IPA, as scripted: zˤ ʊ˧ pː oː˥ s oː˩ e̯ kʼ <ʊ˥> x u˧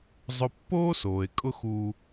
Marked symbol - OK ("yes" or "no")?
yes